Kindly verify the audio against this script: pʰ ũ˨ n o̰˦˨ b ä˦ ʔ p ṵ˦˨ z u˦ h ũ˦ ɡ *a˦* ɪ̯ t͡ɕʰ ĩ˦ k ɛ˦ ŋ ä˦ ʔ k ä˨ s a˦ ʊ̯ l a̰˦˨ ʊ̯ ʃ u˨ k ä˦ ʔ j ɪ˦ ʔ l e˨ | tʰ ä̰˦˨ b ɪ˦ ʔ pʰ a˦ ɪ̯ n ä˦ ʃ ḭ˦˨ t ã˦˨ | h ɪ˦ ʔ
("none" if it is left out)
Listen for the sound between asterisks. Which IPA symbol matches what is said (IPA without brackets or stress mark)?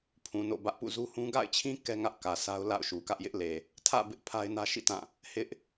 a̰˦˨